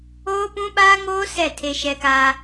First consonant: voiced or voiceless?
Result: voiceless